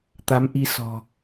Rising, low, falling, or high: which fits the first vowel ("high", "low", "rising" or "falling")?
rising